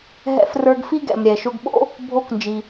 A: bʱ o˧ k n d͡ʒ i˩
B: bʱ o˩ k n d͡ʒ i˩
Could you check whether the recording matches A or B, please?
A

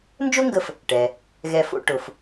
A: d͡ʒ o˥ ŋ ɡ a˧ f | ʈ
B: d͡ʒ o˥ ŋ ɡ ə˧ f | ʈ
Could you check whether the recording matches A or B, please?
B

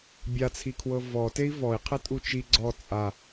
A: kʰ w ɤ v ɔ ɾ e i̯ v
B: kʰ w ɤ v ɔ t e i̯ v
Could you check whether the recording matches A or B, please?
B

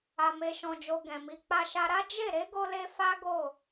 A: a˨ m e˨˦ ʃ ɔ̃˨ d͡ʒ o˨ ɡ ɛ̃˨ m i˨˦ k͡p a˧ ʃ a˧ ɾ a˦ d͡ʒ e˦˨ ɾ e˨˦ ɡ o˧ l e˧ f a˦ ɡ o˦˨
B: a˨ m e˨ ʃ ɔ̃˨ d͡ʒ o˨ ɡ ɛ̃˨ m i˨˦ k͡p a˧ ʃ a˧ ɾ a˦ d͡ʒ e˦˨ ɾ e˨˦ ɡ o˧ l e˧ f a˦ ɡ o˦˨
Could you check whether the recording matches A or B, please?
B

